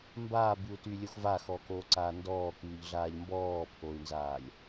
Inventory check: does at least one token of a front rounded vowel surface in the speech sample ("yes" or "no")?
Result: yes